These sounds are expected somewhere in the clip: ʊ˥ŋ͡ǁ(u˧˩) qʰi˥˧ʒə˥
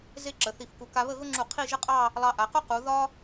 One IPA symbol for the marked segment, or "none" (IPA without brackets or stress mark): u˧˩